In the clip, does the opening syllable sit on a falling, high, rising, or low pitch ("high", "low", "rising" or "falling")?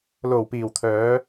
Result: low